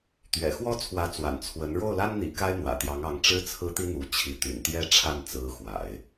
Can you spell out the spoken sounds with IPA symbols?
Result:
t̪ ɥ ɛ̰˨˩ x w ɔ˥ t͡sʰ w ä˧˥ t͡s w a̰˨˩ n t͡sʰ w ə˧˥ n ɻ o˥˩ ʊ̯ l a˥ n n̪ ḭ˨˩ k a˥ ɪ̯ n̪ w ä̰˨˩ t̪ j ɑ˧˥ ŋ ɑ˧˥ ŋ ʈ͡ʂ ɻ̩˥ t͡sʰ ɹ̩˥ t̪ i˥ n̪ u˧˥ t͡ɕʰ i˧˥ t̪ y̰˨˩ n t̪ j ɛ˥˧ ʈ͡ʂʰ a˥˩ n t͡s ɹ̩˧˥ x w a̰˨˩˦ ɪ̯

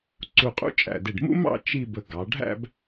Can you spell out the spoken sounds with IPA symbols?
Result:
ǀ u˧˩ qʼ ṵ˥ t͡ʃʼ æ̰˧˩ d ɪ˧˩ ɖ m ṵ˥ m ɑ̰˥˧ t͡ʃ i˥˧ b ə˧ ɡ ɑ˩˧ ɖʱ æ̰˥˧ b

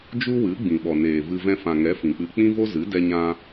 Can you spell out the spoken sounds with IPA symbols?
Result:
d͡ʒ u˦ w ɨ˨˦ ɡ͡b ĩ˨ ɓ ɔ˨ n eː˨ v ɨ˧ v ɛ̃˧ f ã˨ ŋ ɛ˨˦ f ĩ˨ k͡p ɨ˧ k͡p ĩ˦ v o˦ z ɨ˨˦ d ɛ˧ ɲ ã˧

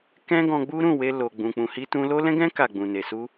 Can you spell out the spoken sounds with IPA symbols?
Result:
k ɛ̃˦ ɡ ɔ̃˧ ɡ͡b u˦ ɾ ũ˦˨ w e˧ l o˨ ɡ͡b ũ˨ k͡p ũ˨ h i˧ t ũ˧ l o˦ l ɛ̃˦ ɡ ɛ̃˦ k a˦˨ ɡ͡b ũ˨ n e˨ s u˧

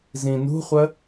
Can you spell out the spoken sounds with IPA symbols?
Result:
z ĩ n ṳ χʷ ə

